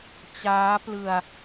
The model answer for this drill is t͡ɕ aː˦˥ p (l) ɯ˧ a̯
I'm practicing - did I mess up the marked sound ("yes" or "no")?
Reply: no